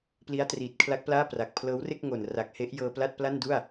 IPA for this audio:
p l i˦˥ a̯ t r iː˨˩ t̚ kʰ l a˦˥ k̚ p l aː˥˩ p r a˨˩ k̚ pʰ l ɤː˦˥ w r e˥˩ k̚ ŋ o˨˩ n r a˨˩ k̚ h e˦˥ ʔ j ɤː˧ p l a˥˩ t̚ p l a˥˩ n d u˥˩ a̯

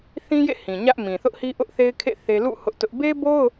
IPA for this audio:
θ ĩ˦ j ḛ˦˨ h ĩ˨ ɲ ä˦ ʔ m ĩ˨ θ ʊ˦ ʔ h i˦ ʔ ʊ˦ ʔ θ e˦ ɪ̯ kʰ ḛ˦˨ θ e˦ l ṵ˦˨ h ʊ˦ ʔ t ʊ˦ ʔ b e˦ b o˦ ʊ̯

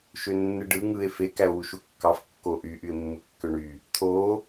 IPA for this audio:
ʃ ø nː ɯ ɖ ɯ ŋ ɯ e̯ f e k æ o̯ w u ʃ u kː ɑ f kː o ʔ y ʔ y e̯ mː ɯ kː ø ɳ y | t̪ʰ o

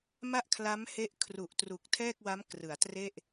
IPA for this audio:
m a˥˩ ʔ kʰ l a˦˥ m h e˦˥ ʔ kʰ r u˨˩ ʔ t r u˨˩ k̚ tʰ ɛː˥˩ k̚ w a˦˥ m k r ɯ˩˦ a̯ t r e˥˩ ʔ

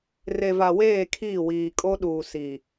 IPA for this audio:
r e˨ v a˨ w eː˦˨ kʰ iː˦˨ w iː˨ kʼ o˦ ɗ uː˨ s i˨

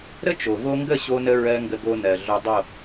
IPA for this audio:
ɾ ə˦ t͡ʃ o˨ v o˧ ŋ ɡ ə˦˨ ɕ o˦ n ə˦ ɹ ɜ˦ ŋ ɡ ə˧ ɡ o˧ n ɜ˨ ɮ o˧ dˤ o˦˨

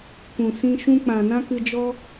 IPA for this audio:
kʷ ũ˨ s ĩ˦ ʃ ũ˧ k͡p ã˨ n ã˦ k ɨ˧ d͡ʒ ɔ˦

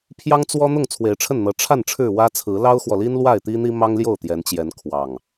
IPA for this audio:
pʰ j ɑ˦ ŋ t͡s w ɔ˦ n̪ ʊ˥˨ ŋ t͡sʰ w e˨˦ ɪ̯ ʈ͡ʂʰ ə˥˨ n n̪ ɤ˨˦ ʈ͡ʂʰ a˥˨ n ʈ͡ʂʰ ɻ̩˥˨ w ä˦ t͡sʰ ɹ̩˨˦ l ɑ˦ ʊ̯ x w ɔ˨ l i˦ n l w a˥˨ ɪ̯ t̪ i˦ n̪ i˦ m ɑ˦ ŋ l j o˥˨ ʊ̯ t̪ j ɛ˨˦ n t͡ɕ j ɛ˨˦ n kʰ w ɑ˨˩ ŋ

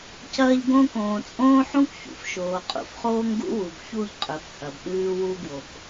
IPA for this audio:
c ɐː˦ ʎ ɡ õː˦ k õː˨ t͡sʼ õː˦ ħ ũ˦ k ç ṵ˨ f ʃ oː˨ qʼ ṵ˨ f χ oː˦ ŋ ɡ ṵ˦ w u˨ b ç u˦˨ ʎ qʼ ɵ˨ f h ɐ˨ b ɗ ʉː˦ w u˦ ɡ w o˨ k

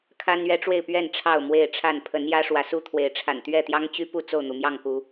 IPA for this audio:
kʰ a˦ n ɥ ɛ˦ ʈ͡ʂ w e˥˨ ɪ̯ p ɥ ɛ˥˨ n ʈ͡ʂʰ ɑ˥˨ ʊ̯ m w e˥˨ ɪ̯ ʈ͡ʂʰ a˥˨ n pʰ ə˨˦ n j ä˦ ʂ w ä˨˦ s u˦ t̪ʰ w e˨˦ ɪ̯ ʈ͡ʂʰ a̰˨˩ n t̪ ɥ ɛ˥˨ t̪ j ɑ˦ ŋ t͡ɕ y˦ p u˥˨ t͡s o˥˨ ʊ̯ n̪ u˩ m j ɑ˥˨ ŋ k u˨˦

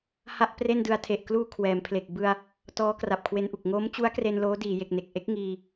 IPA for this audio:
h a˥˩ ʔ p r e˥˩ n d ɯ˧ a̯ tʰ e˨˩ ʔ k l uː˧ kʰ w ɛː˩˦ m pʰ l e˨˩ k̚ b ɯ˧ a̯ | t ɔː˦˥ k r a˨˩ p̚ kʰ w e˧ n ʔ u˨˩ k̚ ŋ o˦˥ m t͡ɕ u˦˥ a̯ k r e˧ n l oː˦˥ d iː˩˦ j e˨˩ k̚ n e˨˩ k̚ ʔ e˦˥ k̚ ŋ iː˧

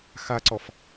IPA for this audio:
x a ǀ ɔ f

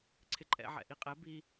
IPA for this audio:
ǀʰ ɪ ǃʼ ɛ̰ ʕ ɛ̰ ʔ i qʼ ɛ b i

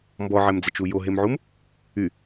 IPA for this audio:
m b ɔ ʕ ɛ m d͡z ɛ t͡ʃ u j o ɦ e m ʕ u m | y

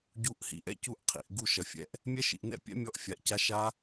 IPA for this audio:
ɟ u˨˦ ʔ h ḭ˨ ʔ ɛ̰˥˨ c u˥˨ ʔ qʰ ḭ˨ ʔ ɡ u˥˨ ʃ ɐ˨ fʲ ɛ̰˦˥ ʔ | mʲ ɛ˦˥ ʃ ḭ˨ ʔ n ɛ̰˥˨ pʲ ɛ̰˦˥ mʲ ɔ˦˥ ʔ fʲ a˨ ʔ c a˦˥ ʃ a˦˥

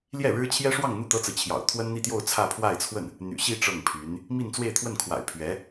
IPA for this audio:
l j ɛ˥˩ ɻ ɻ̩˥ t͡ɕʰ j ɛ˥ ʂ w ɑ˥˧ ŋ n̪ u˥˩ t̪ ɤ˥ t͡s ɹ̩˨ t͡ɕʰ j ɑ̰˨˩ ʊ̯ t̪ʰ w ə˥ n n̪ i˥˧ t̪ j o˥˧ ʊ̯ t͡sʰ ä˥˧ pʰ w a˥˧ ɪ̯ t͡sʰ w ə˥˩ n | n̪ y̰˨˩ ɕ i˥˧ ʈ͡ʂ ɤ˥˩ ŋ pʰ y˧˥ n | m i˥˧ n t͡s w e˥˧ ɪ̯ t̪ʰ w ə˥˩ n kʰ w a̰˨˩ ɪ̯ pʰ ɥ ɛ˧˥

